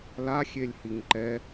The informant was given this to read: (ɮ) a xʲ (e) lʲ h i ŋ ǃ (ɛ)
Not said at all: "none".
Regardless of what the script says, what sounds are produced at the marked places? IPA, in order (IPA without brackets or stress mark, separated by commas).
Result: l, e, ɛ